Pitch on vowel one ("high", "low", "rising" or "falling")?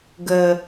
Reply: low